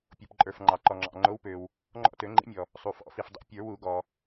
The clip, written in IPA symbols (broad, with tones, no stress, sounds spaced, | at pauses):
pʲ o˩ p ǃʼ ə˞˩ f ŋ͡ǃ ɑ˩ ǃ ɔ˩ ŋ͡ǁ ɑ̰˩ ŋ͡ǃ o˨˥ w p ø˩ w | ŋ͡ǃ ɔ̰˦˨ t ø˨˩˦ ŋ͡ǃ ḭ˨˥ mʲ ɔ˩ | sˤ u˩ f ɔ̰˨˩˦ f i˩ f dˤ ḭ˨˩˦ pʲ ə˞˨˩˦ w u˨˩˦ ɡ ɔ˩